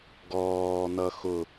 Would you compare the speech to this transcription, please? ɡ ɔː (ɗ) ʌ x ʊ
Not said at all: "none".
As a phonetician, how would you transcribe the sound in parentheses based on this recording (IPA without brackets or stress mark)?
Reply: n̪